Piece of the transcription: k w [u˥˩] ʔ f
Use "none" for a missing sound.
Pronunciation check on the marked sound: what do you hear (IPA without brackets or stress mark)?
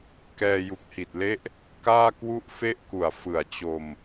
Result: u˥˩